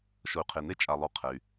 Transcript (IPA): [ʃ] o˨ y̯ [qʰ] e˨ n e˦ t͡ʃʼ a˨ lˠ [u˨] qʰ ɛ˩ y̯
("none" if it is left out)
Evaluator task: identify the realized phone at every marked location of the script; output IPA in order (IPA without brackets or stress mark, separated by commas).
ʃ, qʰ, u˨